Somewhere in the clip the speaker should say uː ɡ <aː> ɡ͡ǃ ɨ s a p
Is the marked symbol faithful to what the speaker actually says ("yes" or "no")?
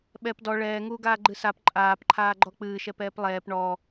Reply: yes